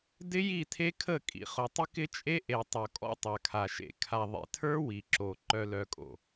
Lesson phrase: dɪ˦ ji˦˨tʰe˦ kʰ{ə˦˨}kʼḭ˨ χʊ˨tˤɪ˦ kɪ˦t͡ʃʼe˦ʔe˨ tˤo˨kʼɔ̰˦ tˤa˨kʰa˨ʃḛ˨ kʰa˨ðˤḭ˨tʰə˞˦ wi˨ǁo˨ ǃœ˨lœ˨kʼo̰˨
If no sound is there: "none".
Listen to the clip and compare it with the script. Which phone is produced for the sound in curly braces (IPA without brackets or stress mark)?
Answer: ə˦˨